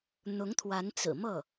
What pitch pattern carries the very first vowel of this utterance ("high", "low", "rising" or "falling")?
rising